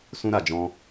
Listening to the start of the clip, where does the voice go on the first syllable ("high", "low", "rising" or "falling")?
high